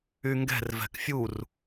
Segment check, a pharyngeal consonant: absent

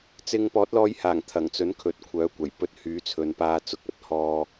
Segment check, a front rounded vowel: present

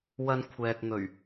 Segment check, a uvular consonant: absent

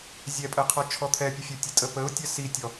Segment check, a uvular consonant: present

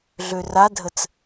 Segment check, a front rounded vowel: present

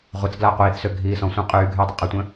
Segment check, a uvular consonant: present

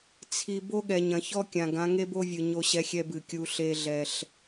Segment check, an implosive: present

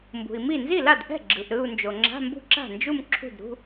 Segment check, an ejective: absent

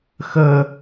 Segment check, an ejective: absent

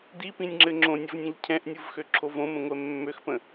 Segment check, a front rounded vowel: present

